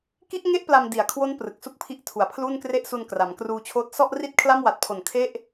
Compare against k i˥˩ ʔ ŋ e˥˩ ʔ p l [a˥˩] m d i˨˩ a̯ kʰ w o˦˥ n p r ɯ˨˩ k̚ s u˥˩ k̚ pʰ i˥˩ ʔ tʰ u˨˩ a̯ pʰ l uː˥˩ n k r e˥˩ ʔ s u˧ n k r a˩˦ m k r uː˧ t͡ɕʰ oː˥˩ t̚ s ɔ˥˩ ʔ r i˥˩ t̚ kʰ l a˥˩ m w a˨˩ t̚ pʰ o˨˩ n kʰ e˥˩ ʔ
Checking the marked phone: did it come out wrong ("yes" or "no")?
yes